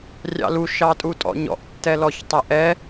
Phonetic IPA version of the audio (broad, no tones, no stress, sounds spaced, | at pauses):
rʲ ɑ̰ l u ʃ ɑ tʼ u tʼ ɔ̰ ɲ ɔ̰ ʔ tː ɛ l ɔ ç tˤ æ ʔ ɛ